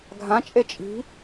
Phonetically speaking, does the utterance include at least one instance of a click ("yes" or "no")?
no